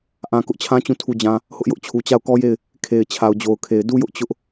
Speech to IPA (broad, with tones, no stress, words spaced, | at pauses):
ʔã˨ kʊ˦ʔt͡ɕʰã˦t͡ɕũ˦˨ tʰu˦˨d͡ʑã˦ | hʊ˦ʔjʊ˦ʔ t͡ɕʰu˨t͡ɕa˦˨ʊ̯kɔ˦je˦˨ɪ̯ | kʰe˨ɪ̯t͡ɕʰa˨ʊ̯d͡ʑo˨ʊ̯kʰe˨ɪ̯ du˦jʊ˦ʔ t͡ɕʊ˦ʔ